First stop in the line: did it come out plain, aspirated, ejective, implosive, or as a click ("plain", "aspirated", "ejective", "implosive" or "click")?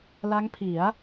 aspirated